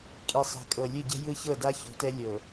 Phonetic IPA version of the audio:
kʼ i˨ sˤ ɛ̤˨ kʼ ɤ˨ lʲ ɯ˦˨ ɟ ɛ̤˦ j ɯ˦ ç ɤ˦˨ d a˦ ç o̤˨˦ t ɛ˦ lʲ ɤ˨

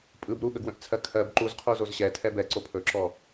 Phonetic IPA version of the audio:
pʼ ɯ b ɾ u ɠ ə ɡ w ə̃ ʔ t͡sʰ ɜ kʰ ɜ b ǃ u z qʰ u z o z ɕ ɛ tʰ ɛ b ɛ ǀ o pʰ ɵ ǁ ɔ

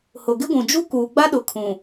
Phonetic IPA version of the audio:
h ʊ˨ ɡ ɪ˦ ɡʷ ũ˨ d͡ʒ u˦ k uː˨ ɡ͡b a˦ ɗ ʊ˨ kʰ ũ˨

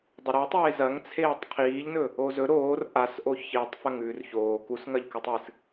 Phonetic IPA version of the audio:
dˤ ɵ ɾ e tˤ eː z ɐ ŋ t͡sʰ eː tˤ qʰ iː ʎ n ɵ | o z ɵ ɾ oː r ʔ a s ʔ o ç i tˤ f ɐ ŋ ʉː r ç oː k u s ŋ ɐ ʎ k ʉ tˤ ɨ s

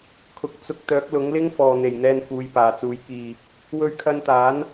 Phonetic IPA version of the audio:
kʰ ʊ˨˥ k̚ t͡s ʊ˧ k̚ t̪ œː˨˥ k̚ l ʊ˨˥ ŋ l ɪ˥ ŋ f ɔː˨ n̪ e˨˩ j n̪ ɛː˧ n f uː˨˧ j p aː˨˩ t͡s uː˨˥ j k iː˧ | w ɵ˧ ɥ kʰ ɐ˧ n t̪ aː˨˥ n

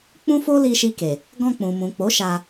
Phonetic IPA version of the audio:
k͡p ũ˦ f o˦ l i˧ ʃ i˧ k e˨ | ɡ ɔ̃˧ k͡p ũ˨ m ũ˨ k͡p o˨˦ ʃ a˧

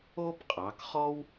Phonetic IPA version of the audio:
o˥ b qʼ ɑ˩˧ k χ ɔ˥ w

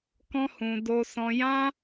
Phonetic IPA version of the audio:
k ɔ̃˦ h ũ˧ d o˧ s ɔ̃˧ j ã˦

